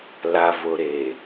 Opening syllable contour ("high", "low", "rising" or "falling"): low